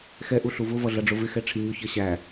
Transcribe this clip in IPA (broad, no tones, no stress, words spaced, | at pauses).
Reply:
xɛ ʔuɬuvʊ vʌɮʌɖ͡ʐʊvɪ xɛʈ͡ʂʰiɲʊ çɜɕæ